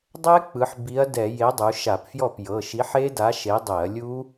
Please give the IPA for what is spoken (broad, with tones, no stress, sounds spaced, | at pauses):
dˤ ɛ˦˥ k͡p ɯ˩˧ ħ b i˨˥ ɐ̯ d ɛ˧˩˧ j e˨˥ dˤ u˩˧ ʃ a˧˩˧ p f j ɔ˥˩ p j ɤ˩˧˩ ʃ i˨˥ ħ e˦˥ d a˨˥ ʃ e˨˥ dˤ e˧˩˧ ɐ̯ lʲ u˦˥